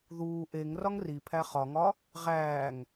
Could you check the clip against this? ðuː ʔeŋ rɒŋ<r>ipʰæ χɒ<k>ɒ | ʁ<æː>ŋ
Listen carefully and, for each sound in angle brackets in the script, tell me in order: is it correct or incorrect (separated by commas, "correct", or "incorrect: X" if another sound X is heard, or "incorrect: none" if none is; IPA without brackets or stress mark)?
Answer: correct, incorrect: ŋ, correct